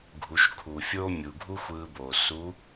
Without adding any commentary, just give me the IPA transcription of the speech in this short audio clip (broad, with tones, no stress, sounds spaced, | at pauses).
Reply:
ɡʱ u˩˧ ʃ kʰ u˩ fʲ oː˥ mʲ u˩ ɡʱ u˥ xʷ ɯː˧ b oː˩ s u˧˥